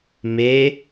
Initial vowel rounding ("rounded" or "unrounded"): unrounded